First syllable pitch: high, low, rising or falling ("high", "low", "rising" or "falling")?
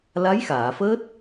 rising